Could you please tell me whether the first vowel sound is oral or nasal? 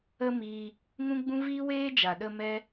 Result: oral